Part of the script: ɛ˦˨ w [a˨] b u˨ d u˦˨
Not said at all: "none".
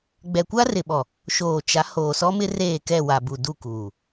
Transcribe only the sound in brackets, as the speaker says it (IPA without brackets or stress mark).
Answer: a˨